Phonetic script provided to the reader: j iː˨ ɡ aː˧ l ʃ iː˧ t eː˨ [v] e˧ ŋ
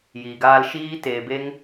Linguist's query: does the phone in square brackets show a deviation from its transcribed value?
yes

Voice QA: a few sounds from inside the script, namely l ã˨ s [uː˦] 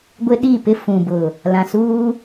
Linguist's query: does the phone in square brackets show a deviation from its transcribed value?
no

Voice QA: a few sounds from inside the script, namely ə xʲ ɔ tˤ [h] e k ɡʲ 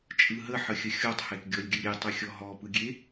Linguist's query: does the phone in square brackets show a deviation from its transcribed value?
no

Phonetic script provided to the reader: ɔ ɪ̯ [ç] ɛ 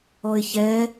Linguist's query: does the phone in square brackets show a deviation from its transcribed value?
no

